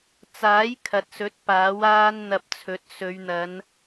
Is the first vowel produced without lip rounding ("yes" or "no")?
yes